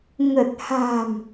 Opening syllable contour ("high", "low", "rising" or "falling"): low